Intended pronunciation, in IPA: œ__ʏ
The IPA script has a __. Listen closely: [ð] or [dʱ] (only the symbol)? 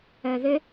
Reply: ð